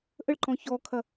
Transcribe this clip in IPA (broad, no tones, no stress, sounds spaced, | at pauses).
ʔ ə ɭ ǃ ɔ̃ ç ɔ kʰ ɐ